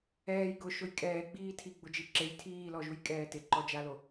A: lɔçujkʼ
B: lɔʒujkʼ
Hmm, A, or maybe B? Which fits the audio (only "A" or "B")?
B